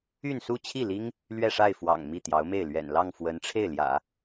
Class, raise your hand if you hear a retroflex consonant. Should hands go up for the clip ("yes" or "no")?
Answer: yes